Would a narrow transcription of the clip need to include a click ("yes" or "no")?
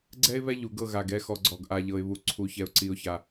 yes